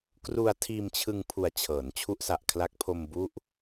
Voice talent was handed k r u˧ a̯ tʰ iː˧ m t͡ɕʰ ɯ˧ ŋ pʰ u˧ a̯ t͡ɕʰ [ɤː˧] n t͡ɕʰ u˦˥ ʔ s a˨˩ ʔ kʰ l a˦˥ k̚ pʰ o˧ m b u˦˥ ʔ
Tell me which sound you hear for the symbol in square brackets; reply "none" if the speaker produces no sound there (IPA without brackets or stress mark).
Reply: ɤː˩˦